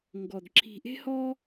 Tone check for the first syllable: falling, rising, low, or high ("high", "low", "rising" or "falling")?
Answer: low